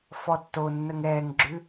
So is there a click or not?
yes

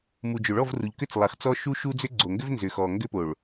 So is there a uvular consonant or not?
yes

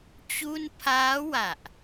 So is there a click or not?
no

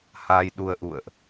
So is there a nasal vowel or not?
no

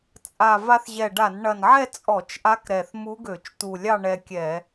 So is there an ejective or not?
yes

